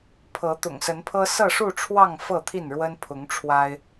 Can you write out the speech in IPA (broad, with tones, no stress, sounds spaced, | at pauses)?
pʰ ɤ˨˦ t̪ ʊ̰˨˩ ŋ s ə˨˦ n pʰ ɤ˦ s ɤ˥˨ ʂ u˥˨ ʈ͡ʂʰ w ɑ˥˨ ŋ f ɤ˥˨ t̪ʰ i˥˨ n ɻ w ə˦ n pʰ ʊ˨˦ ŋ ʈ͡ʂʰ w a˦ ɪ̯